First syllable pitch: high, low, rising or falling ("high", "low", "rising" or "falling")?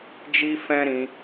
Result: high